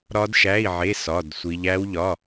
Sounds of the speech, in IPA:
ɾɒ˦˥dʃæ˧˥˧i̯ ʕe˧˥˧ sɒ˧˥˧dsʷi˦˥ʎ æ˦˥wʎɒ˧˥˧

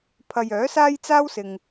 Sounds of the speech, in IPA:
pʰɐ˨j œː˨˥saː˥jt͡saː˥wsɪ˨ŋ

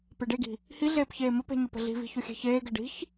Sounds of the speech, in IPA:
peɖeɡi̤ | hiɮeːp çeːməpe̤ ɲəpə̤ɮi̤vi̤ çʊxʲe̤çeːɡɘ ɖi̤ç

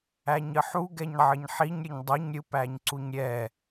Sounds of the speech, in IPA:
æɲəħu ɡɛɲʕəɲħiɲ ɾʲəɲdˤoɲ ɾʲɯpæɲǀuɲɾʲɛ

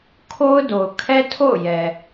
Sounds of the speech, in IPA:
kʰo˦ʊ̯do˨ʊ̯ kʰɛ˦tʰo̰˦˨ʊ̯ jɛ˨

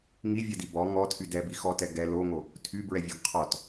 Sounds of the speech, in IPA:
ŋivʲɛdi bɔ ŋɔtʰy dɛbi xɔtɛ ɡɛ loŋo | tʰybɹɛvʲɔɡ qʰɔt

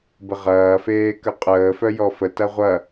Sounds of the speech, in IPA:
bəʁɐːfeː kəqʼəːfœ jɔfətɐ ʁʷɐ

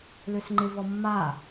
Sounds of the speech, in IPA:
løsŋ͡ǃɪvɔ mːa

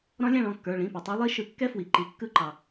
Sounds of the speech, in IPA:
ɾɔ̃˦˥lʲɛ̃˥˨ɭɔ̃˩˧˩kːə˞˩˧˩ ɭĩ˩˧˩pɛ˩tˤɯ˨˦ lˠi˦˥ʃɯ˨˦ kːɛ˦˥fwi˩ ǃi˩kːɯ˧˩˧ ǃɑ˩

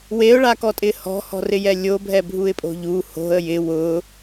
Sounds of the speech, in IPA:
weʊ̯ɭakɔtʼɪ hɔ̤hɔ̤rɪjɛ lʲobʱɛbʱuɪ̯pʼo̤ ʎu ho̤ə̯ jɪ wʊ

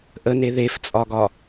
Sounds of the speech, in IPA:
ʔəne ðeft͡sʼɒɡɒ

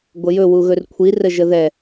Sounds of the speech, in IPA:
ɡʷəjɵ wuɣɵrkʷʰi rəʒəðɛ

